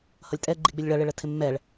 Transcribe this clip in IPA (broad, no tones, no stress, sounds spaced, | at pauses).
h ʌ lʲ tʼ ɛ ɡ͡ǃ i ɡ͡b ɪ lʲ ɭ ʌ ɭ ɪ ɭ ə tʰ ɪ mː ɛ ɭ